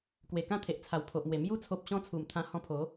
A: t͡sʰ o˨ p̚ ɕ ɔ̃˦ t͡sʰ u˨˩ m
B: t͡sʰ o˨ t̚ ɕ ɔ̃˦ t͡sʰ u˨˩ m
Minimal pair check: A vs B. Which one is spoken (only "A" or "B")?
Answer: A